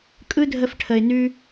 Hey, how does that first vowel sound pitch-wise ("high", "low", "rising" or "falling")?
high